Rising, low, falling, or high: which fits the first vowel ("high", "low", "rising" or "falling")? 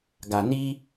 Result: low